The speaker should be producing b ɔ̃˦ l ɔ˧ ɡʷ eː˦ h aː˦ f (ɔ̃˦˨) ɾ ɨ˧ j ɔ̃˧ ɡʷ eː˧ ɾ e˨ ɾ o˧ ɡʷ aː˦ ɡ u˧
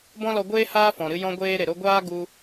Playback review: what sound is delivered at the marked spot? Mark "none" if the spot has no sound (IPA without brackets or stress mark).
ɔ̃˨